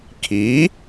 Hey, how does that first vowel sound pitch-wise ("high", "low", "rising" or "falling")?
rising